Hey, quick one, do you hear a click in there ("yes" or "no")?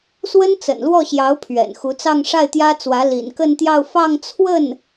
no